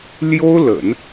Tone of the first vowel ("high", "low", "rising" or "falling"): high